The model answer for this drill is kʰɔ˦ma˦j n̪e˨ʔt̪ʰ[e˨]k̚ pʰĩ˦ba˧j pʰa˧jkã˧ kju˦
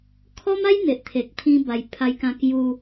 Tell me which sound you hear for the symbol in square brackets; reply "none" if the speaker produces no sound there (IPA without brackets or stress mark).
e˨